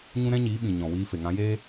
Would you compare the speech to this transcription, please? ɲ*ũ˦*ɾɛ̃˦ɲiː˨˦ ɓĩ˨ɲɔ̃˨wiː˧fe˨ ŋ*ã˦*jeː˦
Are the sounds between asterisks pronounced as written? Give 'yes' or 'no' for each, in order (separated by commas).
yes, no